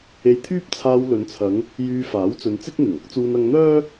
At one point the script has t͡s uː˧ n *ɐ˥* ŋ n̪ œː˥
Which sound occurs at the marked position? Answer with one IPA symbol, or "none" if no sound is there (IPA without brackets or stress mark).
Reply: ɐ˧